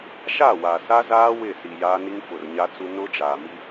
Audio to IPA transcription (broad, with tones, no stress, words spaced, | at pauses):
ʃa˦˨wa˨sa˦zaː˦ wɪ˦˨si˨jaː˦ ni˦ŋfʊ˨rɲa˦t͡su˦ nʊ˦d͡ʒaː˨mi˦